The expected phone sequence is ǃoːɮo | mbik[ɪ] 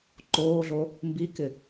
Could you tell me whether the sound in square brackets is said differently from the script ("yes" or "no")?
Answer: no